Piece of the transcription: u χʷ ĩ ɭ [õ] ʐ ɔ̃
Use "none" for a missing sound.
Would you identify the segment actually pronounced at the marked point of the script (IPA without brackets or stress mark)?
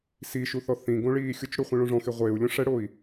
õ